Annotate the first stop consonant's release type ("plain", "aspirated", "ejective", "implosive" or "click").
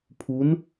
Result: aspirated